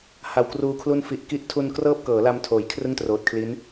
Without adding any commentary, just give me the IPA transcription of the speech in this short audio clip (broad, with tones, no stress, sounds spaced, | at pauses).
h a˨˩ w k r uː˧ kʰ l u˥˩ n f i˨˩ ʔ k i˦˥ ʔ tʰ u˧ n k r ɤː˥˩ p̚ k ɤː˩˦ l a˧ m tʰ oː˩˦ j kʰ r ɯ˥˩ ŋ t r oː˨˩ t̚ kʰ l i˦˥ n